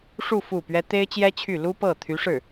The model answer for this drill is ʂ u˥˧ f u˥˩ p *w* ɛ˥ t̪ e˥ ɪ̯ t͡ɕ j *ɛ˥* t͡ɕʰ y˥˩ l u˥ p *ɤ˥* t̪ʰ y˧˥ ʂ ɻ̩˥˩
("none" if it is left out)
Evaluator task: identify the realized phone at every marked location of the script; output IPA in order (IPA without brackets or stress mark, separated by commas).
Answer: ɥ, ɛ˥, ɤ˥˩